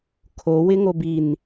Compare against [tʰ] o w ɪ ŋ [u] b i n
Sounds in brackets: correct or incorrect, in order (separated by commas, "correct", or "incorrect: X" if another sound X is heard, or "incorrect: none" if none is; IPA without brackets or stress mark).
incorrect: kʰ, incorrect: o